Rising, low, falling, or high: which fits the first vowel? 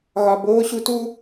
low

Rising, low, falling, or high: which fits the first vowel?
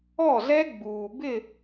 falling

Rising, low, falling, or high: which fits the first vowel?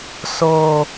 high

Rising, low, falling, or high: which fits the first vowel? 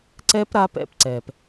high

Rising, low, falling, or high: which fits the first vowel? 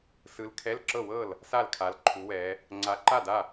rising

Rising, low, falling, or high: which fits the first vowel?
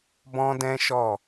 high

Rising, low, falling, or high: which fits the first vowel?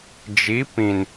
rising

